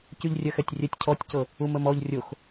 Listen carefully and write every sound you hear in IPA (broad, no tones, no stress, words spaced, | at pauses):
cyʎrʲɜxɛtʲrʲɛtʲ cʰɔtʲcɤ | uməmɔʎ rʲox